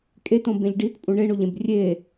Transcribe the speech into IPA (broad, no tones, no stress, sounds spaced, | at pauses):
kʼ e t õ b ẽ ʎ ɖ i t pʼ ũ ɳ e ɳ o ʎ ẽ b rʲ e